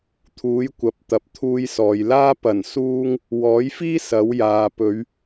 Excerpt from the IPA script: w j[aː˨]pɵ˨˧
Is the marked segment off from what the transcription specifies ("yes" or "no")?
no